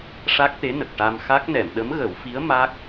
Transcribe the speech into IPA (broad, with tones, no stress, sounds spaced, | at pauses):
ʂ a˦˥ k̚ t̪ e˧˥ n ə˨˩ k̚ ʈ a˧ m x a˦˥ k̚ n ɛ˨˩˨ m ɗ ə˧˥ m ɣ ə˨˩˦ w f i˧˥ ə̯ m a˦˥ k̚